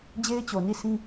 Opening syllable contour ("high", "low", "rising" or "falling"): high